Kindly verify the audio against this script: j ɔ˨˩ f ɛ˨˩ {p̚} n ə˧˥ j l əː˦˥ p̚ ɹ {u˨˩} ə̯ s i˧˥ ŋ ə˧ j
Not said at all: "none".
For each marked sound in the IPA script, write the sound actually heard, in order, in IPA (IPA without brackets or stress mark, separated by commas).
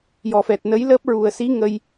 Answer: t̚, u˨˩